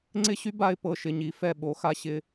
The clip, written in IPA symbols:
ŋ͡ǀ ɪ˥˧ ɕ y˥ b a˥˧ ɪ̯ p ɤ˧˩ ʃ ɪ˧˩ ɲ i˩˧ f ɛ˧˩ ɓ o˩˧ x a˧ ɕ ɪ˧

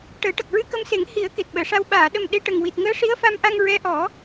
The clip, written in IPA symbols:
ʈ əː˨˩˦ ʈ ə˨˩ k̚ ɹ ɨ˧ k ə˧ m s e˨˩˦ ŋ h i˨˩˦ ə̯ k e˨˩ t̚ ɓ əː˨˩˨ ʂ a˧ w ɓ aː˨˩˨ ɗ ə˨˩ m ɗ e˧ ʈ ə˨˩ ŋ w i˨˩ t̚ ŋ əː˧˥ ʂ i˧˥ ə̯ f a˧ m ʔ a˧ ŋ ɹ ɛ˧˥ ʔ ɔ˨˩˦

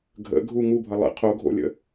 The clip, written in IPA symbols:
ɡʱ ə̰ ɡʱ u ŋ u bʱ ʌ lˠ ə̰ qʰ o ɡʱ o̰ lʲ ə̰

